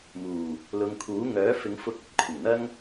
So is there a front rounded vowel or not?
yes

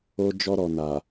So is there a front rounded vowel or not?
no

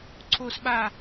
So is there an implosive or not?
yes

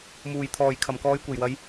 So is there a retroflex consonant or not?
no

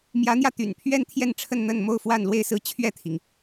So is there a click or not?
no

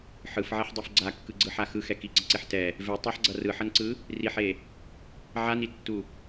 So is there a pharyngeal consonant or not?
yes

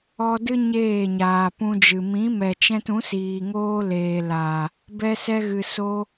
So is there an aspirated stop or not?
no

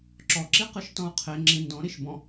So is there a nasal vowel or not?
yes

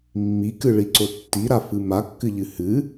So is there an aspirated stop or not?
no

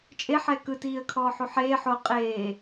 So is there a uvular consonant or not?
yes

